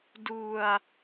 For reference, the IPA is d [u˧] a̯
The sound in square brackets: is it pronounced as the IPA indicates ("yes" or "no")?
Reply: yes